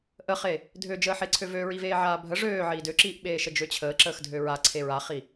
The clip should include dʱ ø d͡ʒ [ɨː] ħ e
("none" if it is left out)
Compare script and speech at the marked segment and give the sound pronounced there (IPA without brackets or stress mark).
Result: əː